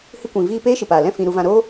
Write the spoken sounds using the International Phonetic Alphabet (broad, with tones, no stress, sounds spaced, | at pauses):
h ɨ˧ kʷ ĩ˨ v iː˧ p eː˦ ʃ ɨ˨ p aː˨ l ɛ̃˦˨ f ĩ˧ ɾ u˧ v ã˧ ɾ o˦